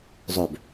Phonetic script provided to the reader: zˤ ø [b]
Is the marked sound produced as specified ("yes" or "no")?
yes